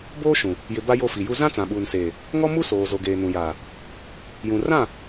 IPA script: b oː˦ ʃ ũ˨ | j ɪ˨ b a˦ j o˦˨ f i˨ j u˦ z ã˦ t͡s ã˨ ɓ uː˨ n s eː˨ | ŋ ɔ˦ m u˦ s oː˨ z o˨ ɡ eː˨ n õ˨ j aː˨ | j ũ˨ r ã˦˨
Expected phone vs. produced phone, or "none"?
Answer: õ˨ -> ũ˨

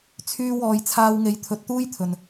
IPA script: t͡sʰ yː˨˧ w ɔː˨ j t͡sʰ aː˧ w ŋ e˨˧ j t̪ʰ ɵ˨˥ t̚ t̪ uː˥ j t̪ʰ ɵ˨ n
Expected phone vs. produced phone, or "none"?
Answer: yː˨˧ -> yː˧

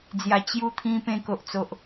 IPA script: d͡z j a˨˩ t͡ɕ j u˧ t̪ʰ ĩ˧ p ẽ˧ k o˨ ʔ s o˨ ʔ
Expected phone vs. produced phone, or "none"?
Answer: s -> t͡s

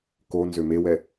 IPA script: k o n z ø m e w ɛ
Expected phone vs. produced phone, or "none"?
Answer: none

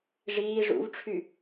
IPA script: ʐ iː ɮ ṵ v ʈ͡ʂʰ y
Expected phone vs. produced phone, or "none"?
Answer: ɮ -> ʐ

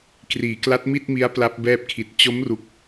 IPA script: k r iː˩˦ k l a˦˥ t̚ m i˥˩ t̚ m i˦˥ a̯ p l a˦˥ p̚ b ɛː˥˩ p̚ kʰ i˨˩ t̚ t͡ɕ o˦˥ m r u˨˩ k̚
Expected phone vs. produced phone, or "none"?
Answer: none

